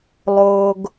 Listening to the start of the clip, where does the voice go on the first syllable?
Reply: low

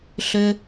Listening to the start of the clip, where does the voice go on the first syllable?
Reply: low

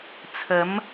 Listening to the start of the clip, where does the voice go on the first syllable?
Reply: rising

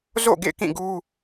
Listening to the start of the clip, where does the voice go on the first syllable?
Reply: falling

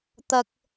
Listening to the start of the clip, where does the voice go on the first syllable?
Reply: high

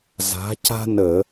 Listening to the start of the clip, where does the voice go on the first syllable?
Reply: rising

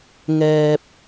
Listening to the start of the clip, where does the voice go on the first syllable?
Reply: low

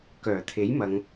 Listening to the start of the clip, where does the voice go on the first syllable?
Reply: low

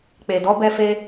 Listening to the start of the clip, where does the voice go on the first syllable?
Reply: low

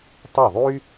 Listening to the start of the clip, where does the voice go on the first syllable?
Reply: falling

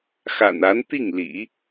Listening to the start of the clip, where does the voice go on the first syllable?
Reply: low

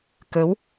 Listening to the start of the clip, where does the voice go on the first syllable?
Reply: rising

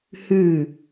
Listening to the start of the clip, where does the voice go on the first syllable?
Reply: falling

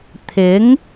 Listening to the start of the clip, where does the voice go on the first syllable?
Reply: rising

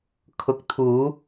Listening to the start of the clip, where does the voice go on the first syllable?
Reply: rising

